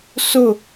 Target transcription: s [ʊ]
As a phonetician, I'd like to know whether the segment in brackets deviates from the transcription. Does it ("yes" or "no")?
no